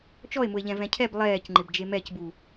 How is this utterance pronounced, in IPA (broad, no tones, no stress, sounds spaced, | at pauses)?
t͡ʃ ɔ e̯ m ʊ e̯ ʎ ɛ̃ v ɛ̃ cʰ ɛ b lˠ ɛː c ŋ͡ǃ ɪ b d͡ʒ e m ɛ c b u